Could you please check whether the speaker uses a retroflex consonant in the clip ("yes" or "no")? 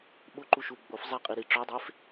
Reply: yes